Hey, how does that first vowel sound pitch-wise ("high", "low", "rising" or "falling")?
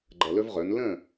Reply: low